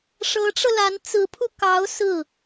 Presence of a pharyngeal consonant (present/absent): absent